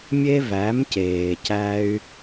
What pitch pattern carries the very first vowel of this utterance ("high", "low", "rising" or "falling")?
high